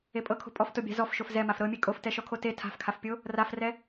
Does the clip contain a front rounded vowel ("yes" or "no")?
no